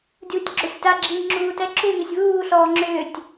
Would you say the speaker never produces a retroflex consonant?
yes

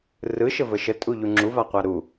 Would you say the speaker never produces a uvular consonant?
no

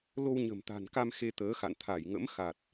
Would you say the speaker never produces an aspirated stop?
no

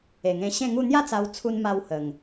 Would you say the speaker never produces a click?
yes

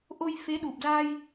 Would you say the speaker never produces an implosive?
no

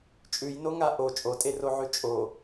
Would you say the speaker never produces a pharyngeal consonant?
no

